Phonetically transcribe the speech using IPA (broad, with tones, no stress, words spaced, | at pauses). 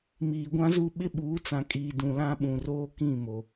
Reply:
miː˨ɡʷã˦zu˦˨ ɓɪ˦ɓuː˨˦t͡sã˨kʼiː˨ dũ˨lã˦ɓũ˨roː˦ kĩ˦˨mo˨